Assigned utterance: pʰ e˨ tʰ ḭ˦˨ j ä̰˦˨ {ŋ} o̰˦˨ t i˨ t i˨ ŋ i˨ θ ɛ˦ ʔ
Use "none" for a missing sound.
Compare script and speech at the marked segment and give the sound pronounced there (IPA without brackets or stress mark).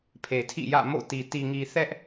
m